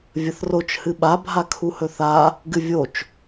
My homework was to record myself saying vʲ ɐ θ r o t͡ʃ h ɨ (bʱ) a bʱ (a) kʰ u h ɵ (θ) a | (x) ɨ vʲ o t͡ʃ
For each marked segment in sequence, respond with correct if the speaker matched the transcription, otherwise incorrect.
incorrect: ɓ, correct, correct, incorrect: ɡ

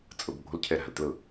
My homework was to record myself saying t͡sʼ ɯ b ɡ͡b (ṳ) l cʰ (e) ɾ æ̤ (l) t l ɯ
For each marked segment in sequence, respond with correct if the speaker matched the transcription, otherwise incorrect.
incorrect: o̤, correct, correct

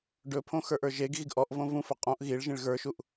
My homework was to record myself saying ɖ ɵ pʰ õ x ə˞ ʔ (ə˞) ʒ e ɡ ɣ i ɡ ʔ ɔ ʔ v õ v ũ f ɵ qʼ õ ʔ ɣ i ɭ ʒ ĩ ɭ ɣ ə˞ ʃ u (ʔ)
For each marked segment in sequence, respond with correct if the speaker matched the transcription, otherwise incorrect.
correct, correct

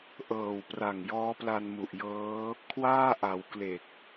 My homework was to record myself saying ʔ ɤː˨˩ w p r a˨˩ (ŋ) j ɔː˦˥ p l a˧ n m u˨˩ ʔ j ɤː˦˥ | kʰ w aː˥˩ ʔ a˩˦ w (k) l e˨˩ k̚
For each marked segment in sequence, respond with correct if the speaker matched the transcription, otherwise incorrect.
correct, correct

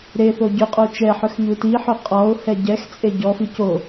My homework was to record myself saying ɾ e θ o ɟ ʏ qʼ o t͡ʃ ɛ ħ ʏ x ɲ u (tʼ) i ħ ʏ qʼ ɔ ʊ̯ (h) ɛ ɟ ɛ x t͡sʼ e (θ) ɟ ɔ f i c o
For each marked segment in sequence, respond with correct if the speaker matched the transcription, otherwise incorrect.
incorrect: t, correct, incorrect: none

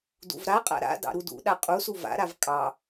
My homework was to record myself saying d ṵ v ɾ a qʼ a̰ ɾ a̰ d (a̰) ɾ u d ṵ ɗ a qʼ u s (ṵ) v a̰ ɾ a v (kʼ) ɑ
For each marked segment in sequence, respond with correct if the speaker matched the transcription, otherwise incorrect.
incorrect: ɑ̰, incorrect: u, correct

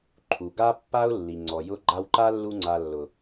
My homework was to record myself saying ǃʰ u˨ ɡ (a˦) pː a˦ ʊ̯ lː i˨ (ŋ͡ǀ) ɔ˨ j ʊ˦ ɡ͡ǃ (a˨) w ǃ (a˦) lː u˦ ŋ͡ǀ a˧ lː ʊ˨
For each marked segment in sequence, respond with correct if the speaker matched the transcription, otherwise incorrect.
correct, correct, incorrect: a˧, correct

